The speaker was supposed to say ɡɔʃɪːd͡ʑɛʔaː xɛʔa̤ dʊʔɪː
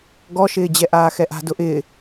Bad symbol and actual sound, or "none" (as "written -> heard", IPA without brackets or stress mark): none